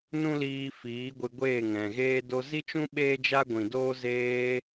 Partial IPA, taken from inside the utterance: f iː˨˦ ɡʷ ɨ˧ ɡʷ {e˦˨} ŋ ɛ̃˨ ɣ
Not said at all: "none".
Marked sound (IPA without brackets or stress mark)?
eː˦˨